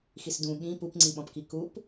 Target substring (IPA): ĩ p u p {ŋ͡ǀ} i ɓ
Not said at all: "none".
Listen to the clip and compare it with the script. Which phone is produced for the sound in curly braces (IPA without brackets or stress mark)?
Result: ŋ͡ǀ